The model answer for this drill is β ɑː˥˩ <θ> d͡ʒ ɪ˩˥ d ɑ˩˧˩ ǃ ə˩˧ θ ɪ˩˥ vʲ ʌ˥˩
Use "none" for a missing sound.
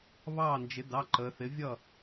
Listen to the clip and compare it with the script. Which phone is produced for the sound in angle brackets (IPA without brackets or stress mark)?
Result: n